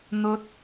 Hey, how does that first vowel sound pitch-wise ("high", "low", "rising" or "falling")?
high